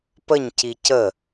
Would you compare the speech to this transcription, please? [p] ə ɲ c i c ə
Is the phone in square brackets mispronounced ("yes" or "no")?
no